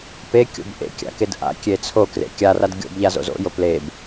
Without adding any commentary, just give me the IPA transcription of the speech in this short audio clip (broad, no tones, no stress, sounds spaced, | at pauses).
p e kʲ o̰ b ʔ ḛ kʲ a̰ k e d ʔ a̰ kʲ e t͡sʰ o k r ḛ kʲ a r a d ɡʲ o̰ b ʎ a z o̰ z o̰ j o p l e b